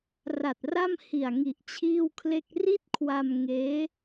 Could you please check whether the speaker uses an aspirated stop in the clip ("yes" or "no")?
yes